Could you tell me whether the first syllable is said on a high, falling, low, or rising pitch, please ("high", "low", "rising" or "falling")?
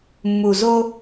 low